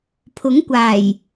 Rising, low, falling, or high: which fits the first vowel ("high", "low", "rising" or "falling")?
rising